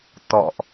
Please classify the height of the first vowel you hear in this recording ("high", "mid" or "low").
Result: mid